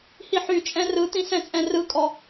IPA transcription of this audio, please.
h i ħ y t͡ʃʼ ɛ̃ r ɯ t̪ ĩ s ɛ̃ t͡sʼ ɛ̃ r ɯ kʼ ɔ

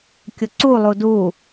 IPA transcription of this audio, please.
kʲ ʊ ǀ u lˠ u d u

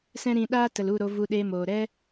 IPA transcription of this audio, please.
s ɛ̃˦ ɾ ĩ˧ ɗ aː˦ t ə˨ l u˦˨ ɾ o˧ v u˧ ɗ eː˧ m oː˨ ɾ ɛ˦

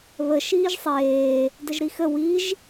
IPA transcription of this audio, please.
β ə ʃ iː ʒ sˤ eː | d ə ʒ ɾ i x ə w i ʒ

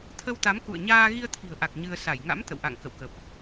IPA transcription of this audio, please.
t̪ʰ ə˧ w t̪ a˨˦ m k ṵ˧˨ ə̯ ɲ aː˧ ɣ i˧ ə̯ t̪ʰ i̤˨˩ ə̯ ʔ a˨˩ k̚ ɲ ɨ˧ ə̯ s a˧˩ j ŋ a̰˧˥ m t̪ ə̰˧˨ w ʔ a̰˧˨ ŋ k ə̰˧˨ w k ə˨˩ p̚

